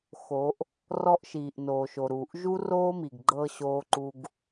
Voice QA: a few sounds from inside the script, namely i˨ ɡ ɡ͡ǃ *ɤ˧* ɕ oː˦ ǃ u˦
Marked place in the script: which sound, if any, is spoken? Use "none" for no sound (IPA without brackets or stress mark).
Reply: ɤ˧